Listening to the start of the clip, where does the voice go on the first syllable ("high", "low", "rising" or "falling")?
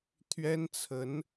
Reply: high